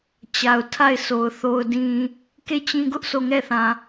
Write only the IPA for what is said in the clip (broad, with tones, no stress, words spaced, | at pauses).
t͡ɕa˨ʊ̯tʰa˦˨ɪ̯so˨ʊ̯ θo˨ʊ̯dĩ˨ | ke˦˨t͡ɕĩ˦ɡʊ˦ʔ sʰo˦˨ŋɛ˦˨θã˨